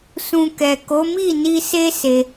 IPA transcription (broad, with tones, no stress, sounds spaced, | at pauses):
s ũ˧ k ɛ˨ k o˨˦ m i˦˨ n i˧ s e˦ s e˧